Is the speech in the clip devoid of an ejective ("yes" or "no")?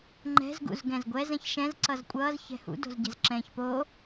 no